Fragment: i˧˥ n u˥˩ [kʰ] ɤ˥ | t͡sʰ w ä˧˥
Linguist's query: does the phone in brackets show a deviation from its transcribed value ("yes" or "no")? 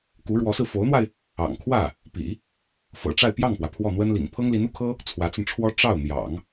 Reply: no